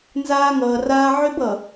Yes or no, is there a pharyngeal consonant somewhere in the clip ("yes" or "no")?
yes